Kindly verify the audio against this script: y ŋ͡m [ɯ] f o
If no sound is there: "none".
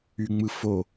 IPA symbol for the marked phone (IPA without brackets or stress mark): ɯ